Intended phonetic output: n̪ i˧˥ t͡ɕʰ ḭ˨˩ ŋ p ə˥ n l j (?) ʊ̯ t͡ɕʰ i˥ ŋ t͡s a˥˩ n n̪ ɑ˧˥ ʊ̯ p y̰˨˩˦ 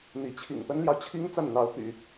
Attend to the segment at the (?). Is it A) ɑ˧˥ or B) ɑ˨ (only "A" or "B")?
B